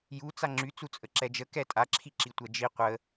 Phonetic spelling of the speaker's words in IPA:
j u t͡s a ŋ͡ǁ y t͡s u t͡sʼ ə ǁ ɛ d͡ʒ ə k ɛ tʼ a ǁʰ i ǁ i tʷ ɛ d͡ʒ i qʷ ə

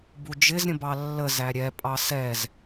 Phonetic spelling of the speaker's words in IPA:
b u d͡ʒ ɪ z ɾʲ ə̃ b ɑ lː ə z æ ɾʲ ɛ pʼ ɑ s ɛ z

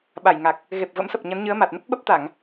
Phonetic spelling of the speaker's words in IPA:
ɓ a˧˩ j ŋ a˨˩ k̚ | ɣ e˨˩ p̚ v ə̰˧˥ m s ə˨˩ p̚ ɲ ə˨˦ n ɲ ɨ˨˦ ə̯ m a˨˩ t̚ n ə˦˥ p̚ ɓ ə˦˥ p̚ t̪ a˧˩˨ ŋ

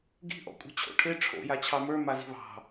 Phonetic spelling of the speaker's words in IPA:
ɡ i̤ ʔ ɔ̰ kʷʼ e̤ t͡ɕʰ o̰ ʈʰ e ʈ͡ʂʰ o̰ j a t͡ɕʰ ɑ m ə˞ m a z i̤ β ɑ̤

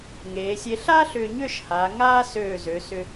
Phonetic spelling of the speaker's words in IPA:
ŋ eː˩˧ sʲ e˧ ɬ a˥ ɬ ʏː˧ ɲ ʏː˥˧ ʃ h aː˩˧ ŋ aː˥ s øː˧˩ z ø˩˧ s ʏ˧

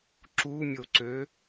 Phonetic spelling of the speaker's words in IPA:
ǁ u mʲ o ǀ ø

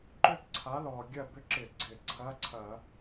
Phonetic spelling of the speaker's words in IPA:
ǃ ʏ˥˧ k ǀʰ a˨˥ l ɔ˨˩ ɡʲ ɐ˥˩ b ʏ˥˩ ǁ ɪ˧˩˧ ɡ͡ǀ ɪ˨˩ ǀʰ ɐ˧˥˧ ǀʰ ɐ˧˩˧

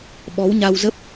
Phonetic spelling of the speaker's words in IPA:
ɓ ɔ˨˦ w ɲ a˧ w z ə˦˥ p̚

